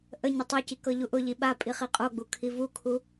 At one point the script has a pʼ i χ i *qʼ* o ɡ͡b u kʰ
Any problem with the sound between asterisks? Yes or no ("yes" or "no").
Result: no